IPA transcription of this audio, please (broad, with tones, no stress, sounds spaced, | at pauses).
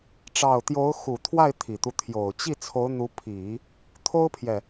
ʈ͡ʂ ɑ˥˩ ʊ̯ t̪ j o˧˥ ʊ̯ x u˨˩ t̪ʰ w a˥˩ ɪ̯ t̪ʰ i˨˩ t̪ u˦ t̪ʰ j o˨˩ ʊ̯ t͡ɕ i˥˩ t͡sʰ o˧˥ ʊ̯ n̪ u˧˥ pʰ i˨˩˦ | t̪ʰ o˥ ʊ̯ pʰ j ɛ˨